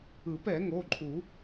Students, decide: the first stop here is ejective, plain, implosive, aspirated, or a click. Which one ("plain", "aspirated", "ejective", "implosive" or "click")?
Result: plain